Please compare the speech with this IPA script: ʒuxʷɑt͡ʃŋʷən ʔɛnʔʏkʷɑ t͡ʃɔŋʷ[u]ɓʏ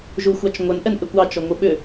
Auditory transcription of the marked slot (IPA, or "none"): ɯ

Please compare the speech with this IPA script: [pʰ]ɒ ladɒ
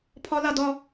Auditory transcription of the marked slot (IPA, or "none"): pʰ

